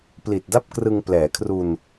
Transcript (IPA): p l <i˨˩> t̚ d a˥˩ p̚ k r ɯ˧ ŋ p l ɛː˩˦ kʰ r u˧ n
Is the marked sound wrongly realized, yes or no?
no